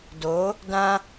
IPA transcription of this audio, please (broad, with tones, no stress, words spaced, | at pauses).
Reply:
do˨˦ | dã˦